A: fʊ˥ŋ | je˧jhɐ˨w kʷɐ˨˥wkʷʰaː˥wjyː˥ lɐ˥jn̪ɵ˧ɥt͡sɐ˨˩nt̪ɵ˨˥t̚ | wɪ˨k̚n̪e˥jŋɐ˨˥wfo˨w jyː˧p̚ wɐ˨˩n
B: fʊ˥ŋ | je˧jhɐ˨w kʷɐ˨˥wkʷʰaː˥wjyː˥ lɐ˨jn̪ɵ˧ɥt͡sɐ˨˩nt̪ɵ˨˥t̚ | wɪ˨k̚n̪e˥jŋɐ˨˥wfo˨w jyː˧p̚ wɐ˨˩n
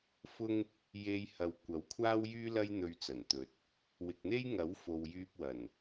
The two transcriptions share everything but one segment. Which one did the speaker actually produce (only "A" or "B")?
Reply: A